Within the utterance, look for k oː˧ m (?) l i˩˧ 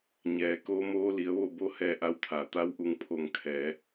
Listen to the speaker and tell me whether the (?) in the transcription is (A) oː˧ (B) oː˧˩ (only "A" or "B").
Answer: A